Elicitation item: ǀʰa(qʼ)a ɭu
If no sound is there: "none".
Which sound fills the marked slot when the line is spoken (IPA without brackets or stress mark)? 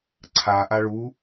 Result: ʔ